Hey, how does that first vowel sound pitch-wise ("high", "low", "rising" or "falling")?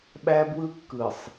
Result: high